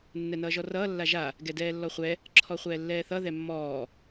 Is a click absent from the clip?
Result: no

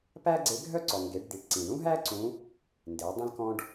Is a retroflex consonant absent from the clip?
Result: no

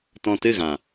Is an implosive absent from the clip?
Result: yes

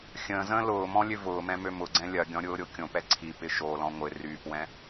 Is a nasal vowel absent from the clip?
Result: no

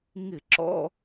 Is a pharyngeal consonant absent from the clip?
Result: yes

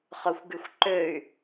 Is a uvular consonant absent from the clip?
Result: no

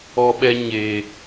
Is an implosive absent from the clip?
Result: no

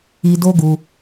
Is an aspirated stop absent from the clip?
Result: yes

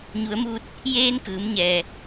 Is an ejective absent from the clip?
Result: yes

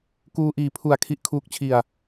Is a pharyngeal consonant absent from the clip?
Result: yes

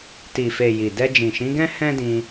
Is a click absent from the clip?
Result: yes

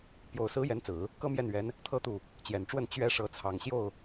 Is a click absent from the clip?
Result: yes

